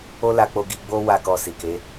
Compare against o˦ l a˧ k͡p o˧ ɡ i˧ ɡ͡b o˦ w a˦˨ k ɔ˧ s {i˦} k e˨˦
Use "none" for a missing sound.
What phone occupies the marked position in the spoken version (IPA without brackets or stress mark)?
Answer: i˨